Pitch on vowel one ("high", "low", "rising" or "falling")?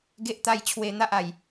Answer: high